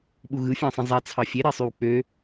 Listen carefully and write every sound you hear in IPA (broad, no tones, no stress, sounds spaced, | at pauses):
ɓ u ɣ ɯ fʲ ɑ̃ sˤ ĩ zˤ æ t͡sʰ ɑ fʲ e ɾ e sˤ y w k͡p ø